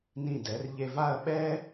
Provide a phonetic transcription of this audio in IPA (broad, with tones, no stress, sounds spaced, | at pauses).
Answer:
n ĩ˧˩ d ɛ˩˧ r ʎ e˧ v a˥˧ ɐ̯ ɓ ɛ˥